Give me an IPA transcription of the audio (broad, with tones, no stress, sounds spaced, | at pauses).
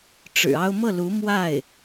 ʈ͡ʂ ɻ̩˨˩ ɑ˥ ʊ̯ m ɤ˥˩ l u˧˥ m w a˥˩ ɪ̯